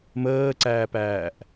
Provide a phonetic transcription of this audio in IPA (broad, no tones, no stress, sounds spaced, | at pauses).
m əː ǀ æː p æː ʔ